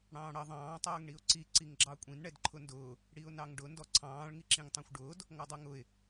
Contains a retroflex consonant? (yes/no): yes